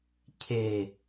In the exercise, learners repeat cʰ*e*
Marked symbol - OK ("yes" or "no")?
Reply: yes